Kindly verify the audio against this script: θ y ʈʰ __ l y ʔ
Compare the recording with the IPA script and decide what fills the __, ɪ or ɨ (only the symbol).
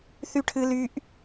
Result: ɨ